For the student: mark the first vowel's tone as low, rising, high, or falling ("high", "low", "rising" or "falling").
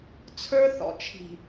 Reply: high